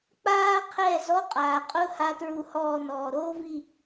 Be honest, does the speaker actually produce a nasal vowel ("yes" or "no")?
no